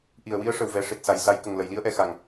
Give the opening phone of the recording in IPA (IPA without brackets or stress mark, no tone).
ʔ